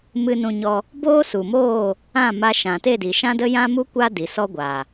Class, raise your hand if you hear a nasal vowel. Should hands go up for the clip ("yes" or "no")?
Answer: yes